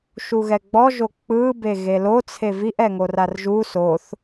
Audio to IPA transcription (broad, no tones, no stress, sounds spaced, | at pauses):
ʃ u ɣ ɛ ɡ͡b ɔ ʒ o k͡p ɯ b e ɣ e l o t͡sʰ e v i ʔ ɛ ŋ o r a r ʒ u s o θ